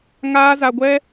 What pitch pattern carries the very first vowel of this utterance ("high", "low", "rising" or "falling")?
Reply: high